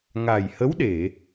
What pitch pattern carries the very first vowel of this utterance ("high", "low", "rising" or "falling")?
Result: low